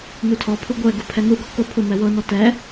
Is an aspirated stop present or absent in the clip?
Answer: present